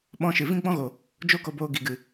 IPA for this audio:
ɓɔ̃˧ʃɨ˨ vĩ˦ɡ͡bɔ̃˦ɣo˨ | d͡ʒo˦ko˧boː˧ ɡi˨ɡɨ˨

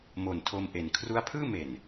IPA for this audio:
mo˨˩ntʰo˧mʔe˩˦n kʰru˦˥a̯pʰɯː˥˩me˨˩n

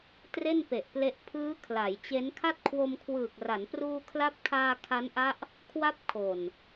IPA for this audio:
tre˥˩npe˨˩ʔple˦˥ʔ pʰɯː˦˥ kʰla˩˦jt͡ɕe˦˥n kʰa˥˩t̚kʰwo˧mkʰwɯː˨˩k̚ra˩˦n pruː˧kʰla˦˥p̚kʰaː˧ kʰa˦˥nʔa˦˥ʔ | kʰwa˥˩p̚kʰo˨˩n

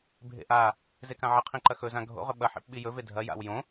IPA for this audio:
bʱḛʔa | zekãʕɐ qʰĩǃɐxɵ zãɡʱo̰ʁɵ ɓɐħḭp ɓijɵve dʱɐ ja̰wjõ

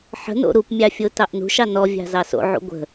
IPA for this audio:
ħə̤no̰ ɾupmʲɑfʲotɑʔ nṳʃɑ nɔvʲɑ̤zɑ so̰ʕṵ ɡʷə̤

